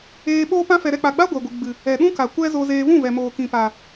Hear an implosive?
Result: yes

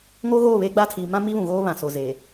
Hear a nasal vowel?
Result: yes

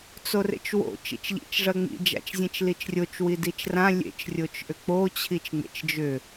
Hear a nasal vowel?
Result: yes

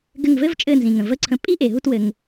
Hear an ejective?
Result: yes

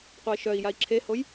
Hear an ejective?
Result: no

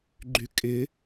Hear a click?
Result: yes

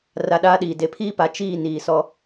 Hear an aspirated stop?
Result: yes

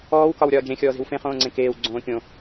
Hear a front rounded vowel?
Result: no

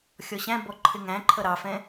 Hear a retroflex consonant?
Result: no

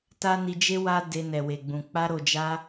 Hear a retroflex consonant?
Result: no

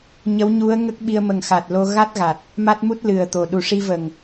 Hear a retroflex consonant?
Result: yes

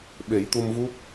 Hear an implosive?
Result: yes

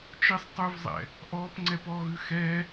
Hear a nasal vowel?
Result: no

